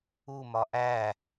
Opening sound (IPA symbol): u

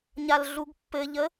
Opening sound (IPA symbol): ɲ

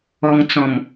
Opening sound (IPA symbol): ɔ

